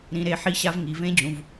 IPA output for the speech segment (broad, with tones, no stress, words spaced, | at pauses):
ɾĩ˧˥ɾe˧˥ ħi˥ɕa˥v ŋi˩˧vẽ˥d͡ʑũ˩˧v